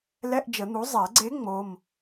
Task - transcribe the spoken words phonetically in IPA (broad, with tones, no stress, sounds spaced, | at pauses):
l ɛ˧˥˧ ʔ d͡ʒ ə˨˩˦ n̪ u˩˥ zˤ ɛ˨˩˦ ɡ͡ǀ e˧˥ ŋ͡m o˧˥˧ m